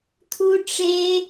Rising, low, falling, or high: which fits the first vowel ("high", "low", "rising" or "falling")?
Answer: high